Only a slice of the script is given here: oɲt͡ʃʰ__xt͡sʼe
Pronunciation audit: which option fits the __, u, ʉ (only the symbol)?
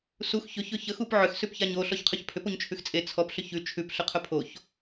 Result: ʉ